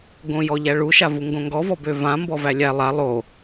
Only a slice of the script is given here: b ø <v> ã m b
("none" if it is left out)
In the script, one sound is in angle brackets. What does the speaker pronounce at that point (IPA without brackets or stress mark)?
v